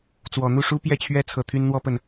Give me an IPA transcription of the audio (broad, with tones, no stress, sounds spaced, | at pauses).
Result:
t͡s w ɔ˨˩ n̪ u˥˩ ʂ u˥ p j ɛ˥˩ t͡ɕʰ ɥ ɛ˥ t͡sʰ ɤ˨˩ t̪ʰ y˥ n n̪ w ɔ˥ p ə˥˩ n